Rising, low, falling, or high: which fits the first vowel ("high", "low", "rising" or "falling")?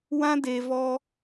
high